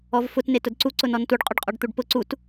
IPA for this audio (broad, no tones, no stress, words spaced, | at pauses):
ɔvfʊt netʊdǀu ǀʊnɔntuɖ qʼʊɖqʼɔɖt̪uɖpʊ ǀut